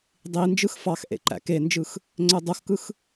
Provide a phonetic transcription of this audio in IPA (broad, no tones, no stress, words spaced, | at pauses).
dˤind͡ʒɯx fɑxʔḛ ǃæ̰kend͡ʒɯx | ŋ͡ǀødˤoxkɯx